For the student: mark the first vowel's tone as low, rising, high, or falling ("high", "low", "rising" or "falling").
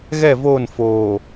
falling